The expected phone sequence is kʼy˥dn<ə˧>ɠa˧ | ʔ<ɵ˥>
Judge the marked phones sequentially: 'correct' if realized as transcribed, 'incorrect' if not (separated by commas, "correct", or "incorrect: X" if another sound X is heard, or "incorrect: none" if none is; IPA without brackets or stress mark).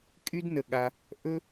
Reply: correct, correct